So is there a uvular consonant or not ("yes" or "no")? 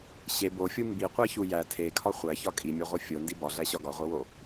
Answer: yes